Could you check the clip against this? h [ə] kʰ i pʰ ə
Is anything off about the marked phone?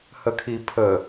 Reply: no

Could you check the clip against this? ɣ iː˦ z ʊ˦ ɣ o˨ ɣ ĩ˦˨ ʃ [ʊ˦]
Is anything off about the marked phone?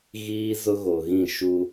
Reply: yes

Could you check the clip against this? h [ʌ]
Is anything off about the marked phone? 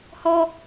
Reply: yes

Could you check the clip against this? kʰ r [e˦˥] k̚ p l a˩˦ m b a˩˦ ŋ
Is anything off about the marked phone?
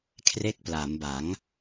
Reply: no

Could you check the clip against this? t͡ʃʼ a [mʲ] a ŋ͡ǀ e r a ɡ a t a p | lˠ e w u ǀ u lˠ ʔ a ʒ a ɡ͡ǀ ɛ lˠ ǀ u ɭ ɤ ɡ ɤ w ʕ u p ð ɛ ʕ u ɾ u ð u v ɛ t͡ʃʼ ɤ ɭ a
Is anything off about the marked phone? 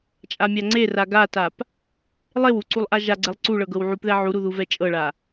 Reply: no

